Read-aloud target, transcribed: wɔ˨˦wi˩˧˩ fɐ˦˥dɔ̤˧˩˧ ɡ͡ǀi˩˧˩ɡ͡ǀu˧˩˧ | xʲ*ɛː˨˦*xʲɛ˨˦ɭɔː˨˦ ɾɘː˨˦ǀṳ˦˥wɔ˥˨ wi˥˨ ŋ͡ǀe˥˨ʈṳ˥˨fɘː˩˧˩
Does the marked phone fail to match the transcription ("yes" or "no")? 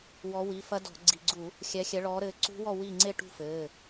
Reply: yes